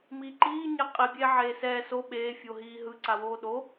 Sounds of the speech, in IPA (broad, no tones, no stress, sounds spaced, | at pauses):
m iː ǃ iː ɲ ɛ qʼ i bʲ eː ʕ eː s ɛː s o ɓ eː fʲ o ɦ iː ɦ ɯ ǀ a w oː ɗ o